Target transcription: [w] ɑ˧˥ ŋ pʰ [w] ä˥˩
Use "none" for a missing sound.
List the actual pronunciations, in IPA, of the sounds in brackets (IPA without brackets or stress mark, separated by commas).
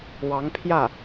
w, j